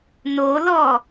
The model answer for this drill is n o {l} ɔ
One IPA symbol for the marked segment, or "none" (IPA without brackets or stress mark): l